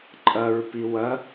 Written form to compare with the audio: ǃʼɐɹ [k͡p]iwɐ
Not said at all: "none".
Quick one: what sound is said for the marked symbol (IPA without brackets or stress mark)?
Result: p